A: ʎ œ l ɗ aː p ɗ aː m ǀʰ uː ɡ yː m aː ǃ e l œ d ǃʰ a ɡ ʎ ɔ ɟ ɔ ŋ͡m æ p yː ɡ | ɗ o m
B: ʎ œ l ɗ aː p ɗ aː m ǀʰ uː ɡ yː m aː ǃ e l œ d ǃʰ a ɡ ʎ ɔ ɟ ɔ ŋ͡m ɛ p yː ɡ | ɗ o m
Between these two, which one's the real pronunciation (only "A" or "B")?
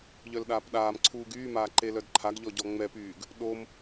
B